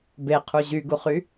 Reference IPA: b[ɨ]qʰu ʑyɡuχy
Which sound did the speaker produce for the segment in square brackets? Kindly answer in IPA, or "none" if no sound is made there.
e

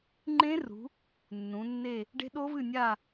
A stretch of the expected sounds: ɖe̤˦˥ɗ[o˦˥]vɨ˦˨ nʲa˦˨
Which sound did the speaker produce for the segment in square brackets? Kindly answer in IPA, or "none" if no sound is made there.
o˦˥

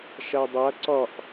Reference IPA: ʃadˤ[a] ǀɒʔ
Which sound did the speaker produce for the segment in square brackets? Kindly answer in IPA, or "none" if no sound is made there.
a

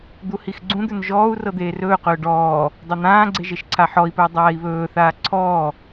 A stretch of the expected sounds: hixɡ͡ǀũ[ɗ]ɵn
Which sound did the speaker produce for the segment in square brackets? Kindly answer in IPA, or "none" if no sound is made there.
d̪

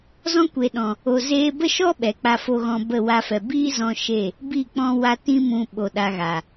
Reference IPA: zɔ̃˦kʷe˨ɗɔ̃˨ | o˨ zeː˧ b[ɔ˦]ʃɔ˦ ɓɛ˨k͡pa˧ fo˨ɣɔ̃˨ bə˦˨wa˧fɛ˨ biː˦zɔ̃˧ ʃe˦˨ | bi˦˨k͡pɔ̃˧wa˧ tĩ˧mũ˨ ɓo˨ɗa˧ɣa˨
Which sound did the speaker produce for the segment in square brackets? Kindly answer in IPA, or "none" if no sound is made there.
ə˦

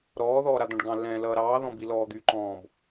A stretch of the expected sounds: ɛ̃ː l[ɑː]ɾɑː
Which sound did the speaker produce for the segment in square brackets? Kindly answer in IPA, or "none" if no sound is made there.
ʌː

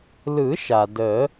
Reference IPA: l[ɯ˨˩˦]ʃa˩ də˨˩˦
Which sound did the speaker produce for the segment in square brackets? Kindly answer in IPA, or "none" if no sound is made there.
ɯ˨˩˦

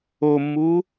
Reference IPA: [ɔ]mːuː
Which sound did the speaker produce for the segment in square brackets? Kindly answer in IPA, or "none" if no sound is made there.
o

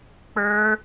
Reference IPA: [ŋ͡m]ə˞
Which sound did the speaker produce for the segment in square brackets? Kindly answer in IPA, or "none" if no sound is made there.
k͡p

